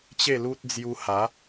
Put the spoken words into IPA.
t͡ɕ e˥˧ l u˦ t̚ d͡z j u˧ h a˨˦

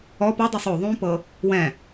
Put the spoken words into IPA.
ɔ p ɔ dˤ o sˤ o ðˤ ũ p ɤ | w ɛ̃

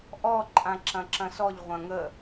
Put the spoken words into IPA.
ʔ ɔ ǃʼ ã ǁ ɐ̃ ǁ ɐ̃ s ɔ ʎ ʁʷ ɐ̃ ŋ ə

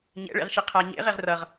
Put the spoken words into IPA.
ɲ ɛ̰ ɭ ḛ ʁ ʃ e qʰ a ɲ ḛ ʁ e ʁ r ʌ ʁ

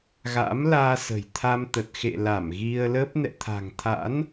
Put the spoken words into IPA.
ɣ a̰˧˥ m l aː˧ s ə̤˨˩ j t̪ʰ a˧ m t̪ ə˨˩ t̚ x ḛ˧˨ l a˧˩ m ɣ i˧ ə̯ l ə˦˥ p̚ n ɛ̰˧˨ t̪ʰ a̤˨˩ ŋ t̪ʰ a̰˧˥ n

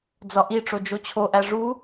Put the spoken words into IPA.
d͡z ɒ ʔ i ʈ͡ʂ o d͡ʒ o t͡ɕʰ o ʔ æ ʐ u

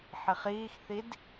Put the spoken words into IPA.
ħ i χ iː x θ i d

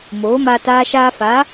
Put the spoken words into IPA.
m oː˨˦ m aː˧ t aː˧ ʃ aː˧ f aː˨˦

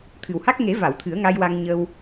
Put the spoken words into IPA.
t̪ʰ ɨ˨˩ w h a˦˥ k̚ ŋ e˨˩˦ v a˨˩˨ w t̪ʰ ɨ˨˩˦ ə̯ ŋ a˧ j w a˧ ŋ ɲ ə˧ w

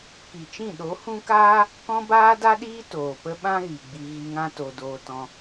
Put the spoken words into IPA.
k i˨ t͡ʃ ĩ˦˨ ɗ o˨˦ h ũ˦ k aː˦ | k ɔ̃˧ b aː˧ d a˧ ɗ iː˧ t oː˨ p ə˦ ɓ ã˦ ɣ i˨ ɡ͡b i˧ ɣ i˧ ŋ ã˦ t o˧ d oː˧ t ɔ̃˧

